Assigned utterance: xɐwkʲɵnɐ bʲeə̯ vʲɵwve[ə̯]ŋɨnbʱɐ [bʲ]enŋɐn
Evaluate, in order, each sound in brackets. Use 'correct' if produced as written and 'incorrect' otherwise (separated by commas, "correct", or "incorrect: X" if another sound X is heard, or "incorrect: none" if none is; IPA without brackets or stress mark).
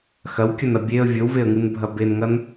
correct, incorrect: b